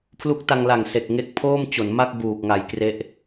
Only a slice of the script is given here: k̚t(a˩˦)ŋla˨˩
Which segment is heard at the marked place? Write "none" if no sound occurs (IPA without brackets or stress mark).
a˧